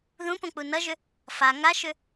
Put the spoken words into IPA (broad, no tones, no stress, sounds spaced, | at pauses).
ð ũ p õ k͡p u n ʌ ʒ ʏ | f a ŋ a ʃ ʏ